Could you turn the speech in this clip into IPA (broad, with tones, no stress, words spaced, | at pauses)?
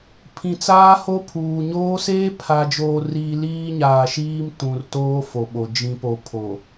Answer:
pʰĩ˨t͡saː˦ho˦pʰuː˨ ɲoː˦ seː˦pʰa˨d͡ʒoː˨riː˨ liː˦ɲaː˨ʃiː˦m tũ˨rtoː˦fo˨ɓo˨ d͡ʒĩ˨po˨ pʰo˨